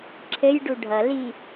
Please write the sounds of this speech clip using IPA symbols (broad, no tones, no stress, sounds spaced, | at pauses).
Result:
ǁʰ ɘ j ɖ u ɖʱ ʌ l i